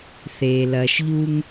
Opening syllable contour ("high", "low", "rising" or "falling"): low